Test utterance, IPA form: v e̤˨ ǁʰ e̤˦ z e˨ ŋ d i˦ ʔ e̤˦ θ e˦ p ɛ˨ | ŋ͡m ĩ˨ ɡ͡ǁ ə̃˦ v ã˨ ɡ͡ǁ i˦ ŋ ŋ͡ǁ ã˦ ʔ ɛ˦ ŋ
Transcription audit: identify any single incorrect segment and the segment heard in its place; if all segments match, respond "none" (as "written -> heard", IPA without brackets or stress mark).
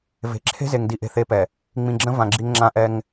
none